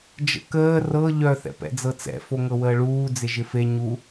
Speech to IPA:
d͡ʒ ə̰ k əː r ɤ ʎ œ θ ɛ̰ p ɛ̰ d͡z ɤ t͡s ɛ̰ f o ŋ ɤ w əː ɭ uː d͡z ɪ ʒ ɪ f e ɲ u

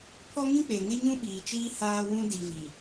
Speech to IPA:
pʰ ɔ˦ ŋ ĩ˦ k͡p e˨ ŋ ɪ˦ ɲ ũ˦ ɓ iː˨ t͡ʃ iː˦ h aː˦ w ũ˦ d i˨ v i˨

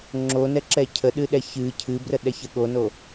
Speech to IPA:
ŋ͡ǁ o n ɛ ǁ ɛ cʰ ə ɗ ɨ ɗ ɛ ç ɨ cʰ ɨ b r ə ɗ ɛ ç ə ɠ o n o

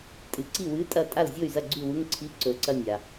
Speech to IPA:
tʼ ɨ˨ ǀ i˥˨ w ɨ˧˥˧ tʼ ɐ˥˨ tʼ a˥˨ l zʲ o˥˨ y̯ z ɐ˥˨ ɡ͡ǀ ʉ˥˨ w u˧˥˧ ŋ ǀʰ i˧˥˧ ǀ ɵ˨ ǀ ɐ˥˨ nʲ a˨

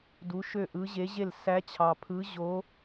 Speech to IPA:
d u˧˥ ʃ ø˥˨ ʔ ɯ˧˥ ʑ e˧˥ ʑ e˥˨ l s æ˧˥ t͡ɕʰ ɑ˨ pʰ ɯ˧˥ ʑ o˧˥

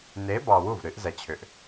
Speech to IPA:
n e˨˦ b ɑ˨ w u˥˩ v ɾ ɨ˨˦ ʔ z ɛ˨ t͡ɕʰ ʏ˨ ʔ

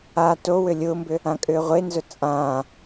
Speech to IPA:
a t o w ʏ lʲ ʊː m b ʏ | ã kʼ ʏː ʁʷ e n z ʊ t͡sʼ ãː

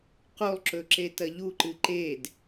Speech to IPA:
q u lˠ ǁ ɵ ǁ e t ɐ ʎ u ǃ ɨ ǃ e d

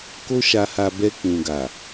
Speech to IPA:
k o˦ ʃ a˧ h a˧ b ɛ˧ k͡p ũ˨ ɡ a˨

